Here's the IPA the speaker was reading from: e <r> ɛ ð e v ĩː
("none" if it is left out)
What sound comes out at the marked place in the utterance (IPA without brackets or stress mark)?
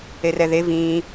r